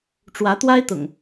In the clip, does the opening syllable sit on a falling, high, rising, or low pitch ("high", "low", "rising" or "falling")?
rising